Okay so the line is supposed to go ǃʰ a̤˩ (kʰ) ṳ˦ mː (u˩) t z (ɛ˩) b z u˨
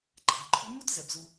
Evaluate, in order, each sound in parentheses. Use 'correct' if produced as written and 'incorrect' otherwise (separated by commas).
incorrect, incorrect, correct